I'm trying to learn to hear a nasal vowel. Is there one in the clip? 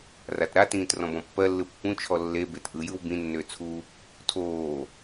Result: yes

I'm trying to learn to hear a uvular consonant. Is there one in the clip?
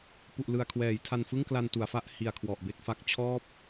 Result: no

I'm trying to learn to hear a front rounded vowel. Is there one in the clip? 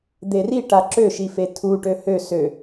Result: yes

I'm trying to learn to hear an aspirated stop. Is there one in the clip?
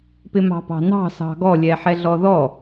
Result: no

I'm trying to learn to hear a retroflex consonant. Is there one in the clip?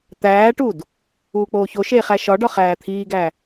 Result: yes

